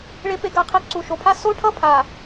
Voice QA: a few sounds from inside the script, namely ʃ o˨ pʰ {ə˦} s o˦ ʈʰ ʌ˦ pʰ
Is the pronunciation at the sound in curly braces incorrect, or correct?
incorrect: a˦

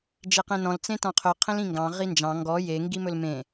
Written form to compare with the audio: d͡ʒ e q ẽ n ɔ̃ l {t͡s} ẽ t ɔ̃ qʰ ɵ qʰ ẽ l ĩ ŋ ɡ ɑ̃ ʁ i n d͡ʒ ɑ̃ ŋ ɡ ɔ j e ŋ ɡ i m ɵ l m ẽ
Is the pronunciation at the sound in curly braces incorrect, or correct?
correct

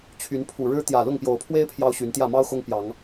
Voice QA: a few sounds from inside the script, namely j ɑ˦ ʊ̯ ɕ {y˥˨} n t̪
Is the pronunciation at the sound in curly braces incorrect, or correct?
incorrect: y˨˦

